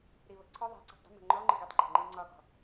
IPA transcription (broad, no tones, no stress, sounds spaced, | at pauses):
ɾ i β ə̤ ǀʰ ɔ ðˤ æ̤ ǀ i̤ tˤ d ə̤ m ə̤ ŋ͡ǃ ɔ ŋ͡ǃ ə ɡ i tˤ ǃʰ ə̤ ŋ͡ǃ i ŋ͡ǀ ɒ ɡ ɔ̤